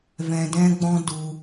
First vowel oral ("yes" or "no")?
no